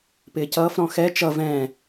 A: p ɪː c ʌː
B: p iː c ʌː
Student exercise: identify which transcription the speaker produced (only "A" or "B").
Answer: A